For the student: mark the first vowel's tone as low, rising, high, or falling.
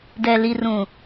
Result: low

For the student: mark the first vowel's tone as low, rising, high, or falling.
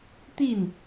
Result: falling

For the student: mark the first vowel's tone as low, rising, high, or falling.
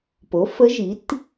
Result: rising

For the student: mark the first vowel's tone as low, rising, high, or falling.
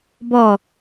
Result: falling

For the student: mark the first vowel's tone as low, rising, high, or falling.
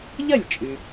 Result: falling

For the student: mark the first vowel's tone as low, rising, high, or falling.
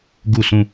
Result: falling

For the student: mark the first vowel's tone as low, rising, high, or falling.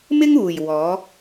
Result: high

